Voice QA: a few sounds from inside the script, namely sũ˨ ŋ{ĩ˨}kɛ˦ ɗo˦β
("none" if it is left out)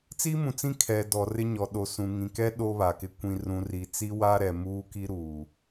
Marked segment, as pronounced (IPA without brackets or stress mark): ĩ˨